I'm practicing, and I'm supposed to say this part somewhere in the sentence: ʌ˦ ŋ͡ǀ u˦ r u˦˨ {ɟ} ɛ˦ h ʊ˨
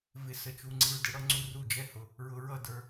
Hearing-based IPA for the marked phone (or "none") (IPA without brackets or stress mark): d͡ʒ